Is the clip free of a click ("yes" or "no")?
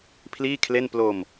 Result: yes